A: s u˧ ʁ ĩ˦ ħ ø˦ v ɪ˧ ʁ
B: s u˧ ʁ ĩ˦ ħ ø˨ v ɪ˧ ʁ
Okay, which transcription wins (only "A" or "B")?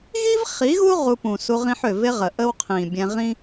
B